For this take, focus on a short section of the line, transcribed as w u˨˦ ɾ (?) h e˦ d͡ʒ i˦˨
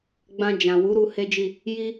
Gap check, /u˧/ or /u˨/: u˧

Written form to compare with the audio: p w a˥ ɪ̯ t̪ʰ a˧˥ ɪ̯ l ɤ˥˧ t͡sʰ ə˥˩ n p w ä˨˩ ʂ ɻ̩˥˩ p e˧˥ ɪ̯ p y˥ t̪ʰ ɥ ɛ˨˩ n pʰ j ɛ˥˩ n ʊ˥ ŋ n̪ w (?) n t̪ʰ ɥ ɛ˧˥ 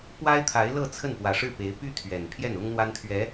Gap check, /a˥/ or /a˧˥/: a˥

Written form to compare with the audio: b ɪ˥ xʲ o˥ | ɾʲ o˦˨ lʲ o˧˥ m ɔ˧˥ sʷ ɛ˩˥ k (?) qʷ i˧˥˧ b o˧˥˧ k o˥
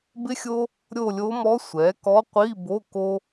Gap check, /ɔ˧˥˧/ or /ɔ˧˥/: ɔ˧˥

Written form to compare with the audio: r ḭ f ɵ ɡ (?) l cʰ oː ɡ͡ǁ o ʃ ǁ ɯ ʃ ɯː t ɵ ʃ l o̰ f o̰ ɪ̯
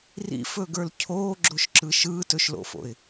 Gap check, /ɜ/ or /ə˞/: ə˞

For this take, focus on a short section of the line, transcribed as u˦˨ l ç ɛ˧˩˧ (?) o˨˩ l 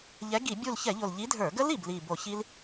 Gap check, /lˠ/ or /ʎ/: ʎ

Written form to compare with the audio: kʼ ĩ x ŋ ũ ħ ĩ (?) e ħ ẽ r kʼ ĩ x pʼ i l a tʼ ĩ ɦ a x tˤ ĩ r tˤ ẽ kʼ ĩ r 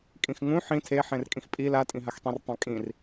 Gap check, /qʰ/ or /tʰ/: tʰ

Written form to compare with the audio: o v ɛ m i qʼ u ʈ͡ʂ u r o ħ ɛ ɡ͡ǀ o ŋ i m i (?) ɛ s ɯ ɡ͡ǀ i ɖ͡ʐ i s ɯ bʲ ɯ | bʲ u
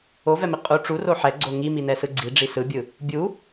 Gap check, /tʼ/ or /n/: n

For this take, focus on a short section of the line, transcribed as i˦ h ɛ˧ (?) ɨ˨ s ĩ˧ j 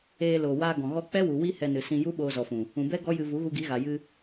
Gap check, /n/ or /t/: n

